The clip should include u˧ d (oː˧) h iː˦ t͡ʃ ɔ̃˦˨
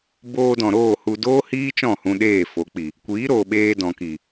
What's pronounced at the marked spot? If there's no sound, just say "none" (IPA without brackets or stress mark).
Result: oː˦